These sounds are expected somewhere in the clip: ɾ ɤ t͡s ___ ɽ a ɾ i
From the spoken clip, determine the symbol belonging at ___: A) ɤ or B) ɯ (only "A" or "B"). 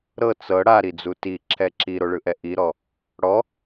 A